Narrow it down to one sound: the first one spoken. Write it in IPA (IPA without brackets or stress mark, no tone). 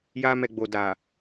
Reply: j